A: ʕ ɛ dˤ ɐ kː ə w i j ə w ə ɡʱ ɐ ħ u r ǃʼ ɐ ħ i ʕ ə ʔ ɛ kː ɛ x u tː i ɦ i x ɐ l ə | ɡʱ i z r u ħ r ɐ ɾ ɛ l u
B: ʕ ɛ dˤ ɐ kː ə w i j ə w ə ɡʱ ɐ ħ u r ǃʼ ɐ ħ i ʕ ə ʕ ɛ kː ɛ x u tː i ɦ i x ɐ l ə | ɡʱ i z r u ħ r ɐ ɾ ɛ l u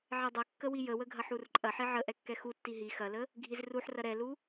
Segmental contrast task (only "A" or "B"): A